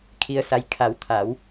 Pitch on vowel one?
low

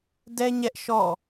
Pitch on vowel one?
high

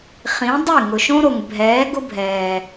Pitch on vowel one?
rising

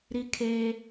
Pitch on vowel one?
high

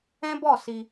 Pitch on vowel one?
high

